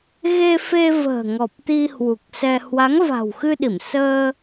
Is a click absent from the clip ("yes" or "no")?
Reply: yes